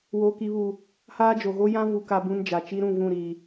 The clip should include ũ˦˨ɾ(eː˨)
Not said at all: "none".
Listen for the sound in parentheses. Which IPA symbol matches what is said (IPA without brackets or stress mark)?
iː˨